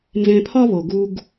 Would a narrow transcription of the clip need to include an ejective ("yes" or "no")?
no